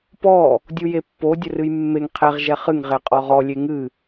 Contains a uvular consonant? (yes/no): yes